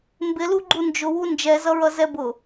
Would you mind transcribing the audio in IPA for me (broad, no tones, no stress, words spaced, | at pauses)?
mbɪlu ɡ͡ǃund͡ʒʊwu nd͡ʒɛzʌɹʌ zɛbʊ